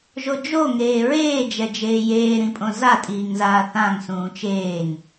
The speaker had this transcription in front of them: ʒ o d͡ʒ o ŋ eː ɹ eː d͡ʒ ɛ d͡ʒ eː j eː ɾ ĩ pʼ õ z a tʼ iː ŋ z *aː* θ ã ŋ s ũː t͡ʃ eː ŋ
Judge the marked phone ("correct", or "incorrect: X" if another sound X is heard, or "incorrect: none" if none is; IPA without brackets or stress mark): correct